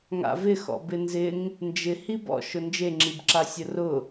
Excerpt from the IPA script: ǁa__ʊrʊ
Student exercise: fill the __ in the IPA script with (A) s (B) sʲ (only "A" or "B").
B